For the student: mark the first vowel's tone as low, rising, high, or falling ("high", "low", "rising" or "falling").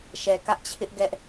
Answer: low